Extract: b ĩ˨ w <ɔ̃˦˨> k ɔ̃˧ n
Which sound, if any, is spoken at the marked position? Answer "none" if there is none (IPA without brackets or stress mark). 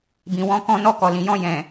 ɔ̃˧